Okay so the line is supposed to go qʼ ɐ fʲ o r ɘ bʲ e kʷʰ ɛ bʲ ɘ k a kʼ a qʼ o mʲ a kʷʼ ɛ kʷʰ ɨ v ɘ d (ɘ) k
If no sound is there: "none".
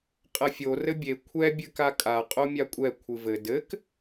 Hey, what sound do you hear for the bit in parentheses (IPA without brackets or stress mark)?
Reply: ɘ